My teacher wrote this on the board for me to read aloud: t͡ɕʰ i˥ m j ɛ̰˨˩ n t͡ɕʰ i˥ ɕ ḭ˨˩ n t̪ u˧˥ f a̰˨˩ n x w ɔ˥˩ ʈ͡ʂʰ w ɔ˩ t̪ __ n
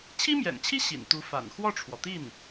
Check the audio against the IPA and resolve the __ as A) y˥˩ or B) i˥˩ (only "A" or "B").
B